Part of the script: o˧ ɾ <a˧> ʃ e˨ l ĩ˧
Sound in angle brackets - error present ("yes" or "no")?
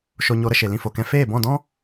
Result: yes